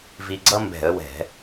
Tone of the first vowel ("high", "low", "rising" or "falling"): low